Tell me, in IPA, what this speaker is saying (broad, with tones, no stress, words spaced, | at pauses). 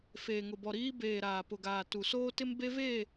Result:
feː˨ŋʊ˨bɔ˨ɾiː˦ beː˨ ɾaː˨pʊ˨ɡaː˨ tu˨soː˦tɪ˦m be˦ve˦˨